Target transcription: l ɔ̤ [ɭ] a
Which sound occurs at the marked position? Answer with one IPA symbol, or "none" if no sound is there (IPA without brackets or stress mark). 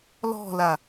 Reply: l